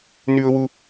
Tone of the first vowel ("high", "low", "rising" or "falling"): high